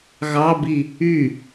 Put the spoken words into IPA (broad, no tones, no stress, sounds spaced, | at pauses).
ɣ ɑ b i | y